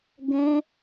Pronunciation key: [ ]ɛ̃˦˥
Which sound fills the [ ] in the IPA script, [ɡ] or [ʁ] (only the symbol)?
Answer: ɡ